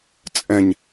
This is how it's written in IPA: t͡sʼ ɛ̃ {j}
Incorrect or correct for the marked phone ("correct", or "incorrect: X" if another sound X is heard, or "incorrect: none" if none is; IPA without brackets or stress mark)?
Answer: incorrect: ɲ